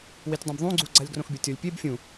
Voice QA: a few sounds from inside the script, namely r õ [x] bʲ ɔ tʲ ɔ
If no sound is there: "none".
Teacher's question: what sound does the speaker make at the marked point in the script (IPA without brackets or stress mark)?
x